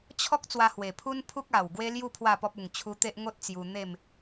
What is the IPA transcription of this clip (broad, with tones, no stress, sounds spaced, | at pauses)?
t͡ɕʰ ɔ˦ k̚ t͡s w a˧ h w e˨˩ pʰ u˦ n pʰ u˦ k̚ a˨˩ w ɡ w e˦ l j u˥˧ pʰ w a˥˧ p ɔ˦ p̚ u˨˩ ŋ t͡ɕʰ u˧ t̪ e˦ ʔ ŋ o˦ t̚ t͡s j u˧ n̪ e˥˧ m